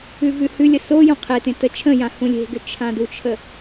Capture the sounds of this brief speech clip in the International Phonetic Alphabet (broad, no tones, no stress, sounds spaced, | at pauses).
ʉ v ʉ h ʉ lʲ ə s o j õ qʰ e t ẽ t ə t͡ʃʰ ə̃ j ã h ũ lʲ e̤ ɡ ʏ t͡ʃʰ ã d u t͡ʃʰ ə